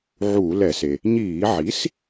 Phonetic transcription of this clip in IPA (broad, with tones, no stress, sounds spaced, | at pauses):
ʕ uː˧˩˧ l ɛ˧˩˧ s e˩ | ɲ iː˧˩˧ ʕ i˩˥ s